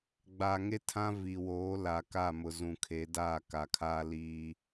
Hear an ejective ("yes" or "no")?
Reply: no